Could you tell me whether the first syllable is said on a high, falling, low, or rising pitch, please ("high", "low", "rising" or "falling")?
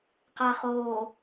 low